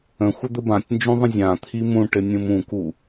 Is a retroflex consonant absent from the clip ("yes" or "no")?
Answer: no